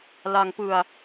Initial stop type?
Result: plain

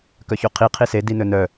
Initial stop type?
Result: plain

